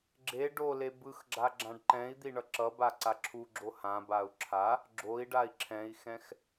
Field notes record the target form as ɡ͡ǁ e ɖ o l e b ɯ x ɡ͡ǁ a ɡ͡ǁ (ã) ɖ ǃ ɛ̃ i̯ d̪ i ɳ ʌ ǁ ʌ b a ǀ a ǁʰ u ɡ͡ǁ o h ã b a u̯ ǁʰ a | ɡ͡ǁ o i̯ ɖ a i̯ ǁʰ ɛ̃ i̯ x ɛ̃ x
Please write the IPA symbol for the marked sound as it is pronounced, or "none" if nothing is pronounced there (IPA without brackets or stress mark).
ã